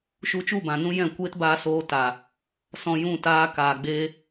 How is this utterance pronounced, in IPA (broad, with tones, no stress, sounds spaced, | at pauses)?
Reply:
ʃ u˧ t͡ʃ u˦˨ b ã˨ n ũ˦ j ɛ̃˦˨ kʷ eː˦ t b aː˧ s oː˧ t a˨ | s ɔ̃˧ j ũ˦˨ t aː˧ k aː˨ ɡ͡b eː˧